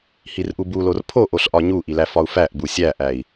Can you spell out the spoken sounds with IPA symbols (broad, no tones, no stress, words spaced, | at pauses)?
hirʔubulor pʰoʔoɬ ʔɒɲuʔi læfɒu̯fæʔbu sʲæʔæi̯